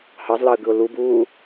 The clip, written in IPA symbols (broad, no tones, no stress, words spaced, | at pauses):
hɑzlɑə̯ɡɯʊ̯ lubuː